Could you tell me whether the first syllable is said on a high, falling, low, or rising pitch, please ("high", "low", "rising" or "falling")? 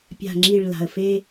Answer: low